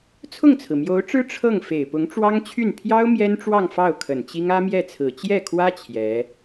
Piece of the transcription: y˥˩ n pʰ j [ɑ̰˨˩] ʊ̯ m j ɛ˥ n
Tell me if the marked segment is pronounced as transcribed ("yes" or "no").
no